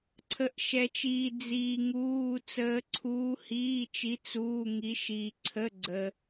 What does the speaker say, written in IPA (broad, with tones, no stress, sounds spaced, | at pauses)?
ǀʰ ə˧˥ ʔ ʃ ɛ˧ t͡ʃ iː˧ d͡z iː˧ ŋ uː˧˥˧ t͡s əː˧˥ ǀʰ uː˧˥ h iː˧˥˧ t͡ʃ i˧˥ t͡s uː˧˥˧ ŋ i˧˥ ʃ iː˧ ǀʰ ə˧˥˧ ɡ͡ǀ əː˧